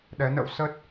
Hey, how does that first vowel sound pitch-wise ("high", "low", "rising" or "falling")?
rising